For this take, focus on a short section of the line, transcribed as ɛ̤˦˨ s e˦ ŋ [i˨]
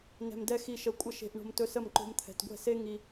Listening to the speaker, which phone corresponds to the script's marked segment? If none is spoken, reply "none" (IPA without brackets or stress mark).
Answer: i˧